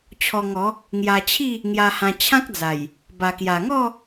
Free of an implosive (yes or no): yes